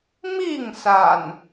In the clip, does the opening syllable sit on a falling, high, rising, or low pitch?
falling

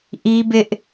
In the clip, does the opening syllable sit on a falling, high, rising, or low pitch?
high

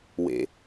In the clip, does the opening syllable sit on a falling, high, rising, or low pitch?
low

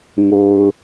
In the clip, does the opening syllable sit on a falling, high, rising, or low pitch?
low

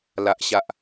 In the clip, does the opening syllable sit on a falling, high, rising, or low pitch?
low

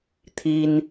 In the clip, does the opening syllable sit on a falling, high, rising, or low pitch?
high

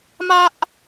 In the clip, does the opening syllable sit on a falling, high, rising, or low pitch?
high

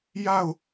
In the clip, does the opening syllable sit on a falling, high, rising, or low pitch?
falling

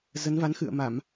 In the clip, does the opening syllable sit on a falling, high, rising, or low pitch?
rising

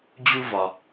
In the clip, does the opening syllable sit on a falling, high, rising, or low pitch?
high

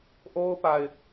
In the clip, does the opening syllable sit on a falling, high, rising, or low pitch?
high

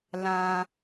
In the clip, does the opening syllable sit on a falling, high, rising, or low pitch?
high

